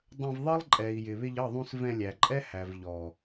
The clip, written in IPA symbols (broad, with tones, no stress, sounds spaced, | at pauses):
dˤ ə̃˧ v ðˤ ʌ˦ lˠ ǃʼ ɛ˨ i̯ j ɪ˨ β ɪ˧ ʎ ʌ˦˨ ðˤ ũ˧ s v ɛ̃˧ lʲ æ˨ ǃʼ ɛ˦ h æ˨ v ʎ ɔ˨